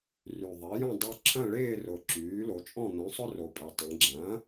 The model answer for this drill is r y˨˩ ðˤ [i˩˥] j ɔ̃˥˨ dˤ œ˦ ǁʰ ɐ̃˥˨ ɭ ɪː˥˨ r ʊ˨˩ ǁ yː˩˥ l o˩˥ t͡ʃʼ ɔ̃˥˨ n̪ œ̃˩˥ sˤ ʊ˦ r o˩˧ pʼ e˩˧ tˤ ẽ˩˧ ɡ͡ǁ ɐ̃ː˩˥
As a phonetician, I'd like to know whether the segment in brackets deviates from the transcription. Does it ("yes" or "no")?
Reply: no